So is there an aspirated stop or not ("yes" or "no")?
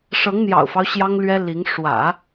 no